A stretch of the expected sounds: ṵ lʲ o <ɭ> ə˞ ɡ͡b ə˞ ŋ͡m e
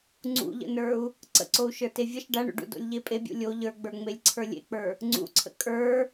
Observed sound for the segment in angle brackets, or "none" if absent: ʎ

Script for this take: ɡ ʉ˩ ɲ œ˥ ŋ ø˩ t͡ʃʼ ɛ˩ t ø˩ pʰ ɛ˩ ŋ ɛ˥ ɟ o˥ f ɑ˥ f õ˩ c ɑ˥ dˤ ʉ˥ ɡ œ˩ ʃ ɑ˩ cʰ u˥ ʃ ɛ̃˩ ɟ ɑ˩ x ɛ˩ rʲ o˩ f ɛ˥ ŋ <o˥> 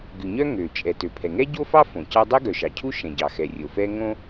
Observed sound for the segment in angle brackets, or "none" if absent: õ˥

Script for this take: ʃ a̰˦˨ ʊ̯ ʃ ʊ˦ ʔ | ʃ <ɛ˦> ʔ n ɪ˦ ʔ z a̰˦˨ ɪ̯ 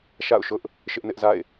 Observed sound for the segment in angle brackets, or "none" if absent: ɪ˦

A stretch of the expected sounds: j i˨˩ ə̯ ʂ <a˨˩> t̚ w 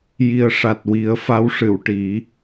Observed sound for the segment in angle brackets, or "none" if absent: a˨˩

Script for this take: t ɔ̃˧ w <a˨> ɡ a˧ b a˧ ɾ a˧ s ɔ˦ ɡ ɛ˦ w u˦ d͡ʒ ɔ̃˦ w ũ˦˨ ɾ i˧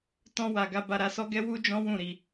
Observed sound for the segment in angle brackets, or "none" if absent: a˨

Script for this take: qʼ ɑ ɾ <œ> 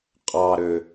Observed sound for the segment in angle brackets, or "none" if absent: ø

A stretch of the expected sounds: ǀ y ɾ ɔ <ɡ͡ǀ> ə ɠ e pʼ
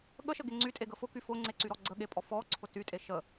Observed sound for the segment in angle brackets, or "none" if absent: ɡ͡ǀ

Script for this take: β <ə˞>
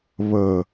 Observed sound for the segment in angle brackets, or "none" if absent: ə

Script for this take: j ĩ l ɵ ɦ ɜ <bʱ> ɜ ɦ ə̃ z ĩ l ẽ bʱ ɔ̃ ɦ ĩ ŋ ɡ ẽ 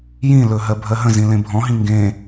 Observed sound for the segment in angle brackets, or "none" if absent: bʱ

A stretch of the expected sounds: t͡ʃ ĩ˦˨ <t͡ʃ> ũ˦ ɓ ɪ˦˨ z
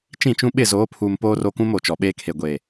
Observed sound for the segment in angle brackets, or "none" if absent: t͡ʃ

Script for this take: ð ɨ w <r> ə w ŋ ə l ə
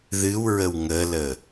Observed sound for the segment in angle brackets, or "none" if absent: ɹ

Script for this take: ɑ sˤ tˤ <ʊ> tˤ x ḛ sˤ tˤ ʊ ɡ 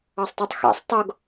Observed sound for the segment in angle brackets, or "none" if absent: u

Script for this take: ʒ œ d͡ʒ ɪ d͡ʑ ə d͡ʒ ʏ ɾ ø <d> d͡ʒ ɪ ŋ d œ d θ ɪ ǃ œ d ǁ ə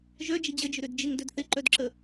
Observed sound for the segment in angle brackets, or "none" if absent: d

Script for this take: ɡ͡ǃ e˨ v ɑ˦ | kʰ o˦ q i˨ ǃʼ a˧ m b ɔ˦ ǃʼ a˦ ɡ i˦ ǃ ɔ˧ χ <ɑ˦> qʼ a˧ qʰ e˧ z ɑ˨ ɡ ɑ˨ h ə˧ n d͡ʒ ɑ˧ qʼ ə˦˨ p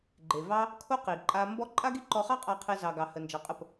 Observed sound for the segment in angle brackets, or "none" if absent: ɑ˦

